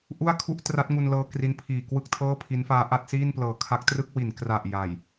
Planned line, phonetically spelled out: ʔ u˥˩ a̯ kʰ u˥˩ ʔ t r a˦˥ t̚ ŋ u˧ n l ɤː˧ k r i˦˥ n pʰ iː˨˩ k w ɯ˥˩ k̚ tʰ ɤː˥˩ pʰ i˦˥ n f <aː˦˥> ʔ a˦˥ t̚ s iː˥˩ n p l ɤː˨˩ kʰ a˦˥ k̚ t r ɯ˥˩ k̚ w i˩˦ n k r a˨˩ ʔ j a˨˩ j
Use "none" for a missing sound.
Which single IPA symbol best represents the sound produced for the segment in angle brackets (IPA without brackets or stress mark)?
aː˦˥